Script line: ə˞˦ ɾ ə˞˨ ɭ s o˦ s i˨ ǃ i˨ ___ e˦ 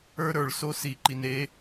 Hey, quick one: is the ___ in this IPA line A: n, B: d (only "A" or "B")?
A